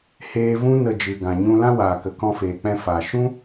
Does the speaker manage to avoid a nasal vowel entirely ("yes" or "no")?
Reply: no